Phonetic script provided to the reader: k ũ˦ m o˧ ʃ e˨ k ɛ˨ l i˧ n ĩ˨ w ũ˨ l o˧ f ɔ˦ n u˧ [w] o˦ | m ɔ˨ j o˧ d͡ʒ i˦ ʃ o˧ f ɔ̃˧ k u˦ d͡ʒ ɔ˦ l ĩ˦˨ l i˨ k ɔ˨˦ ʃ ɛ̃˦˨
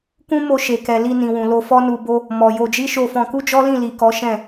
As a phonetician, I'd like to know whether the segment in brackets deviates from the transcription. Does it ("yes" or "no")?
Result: yes